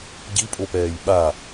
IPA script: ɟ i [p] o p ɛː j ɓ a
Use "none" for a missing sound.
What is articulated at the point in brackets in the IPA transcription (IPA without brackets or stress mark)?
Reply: pʼ